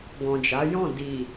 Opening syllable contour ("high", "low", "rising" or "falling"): low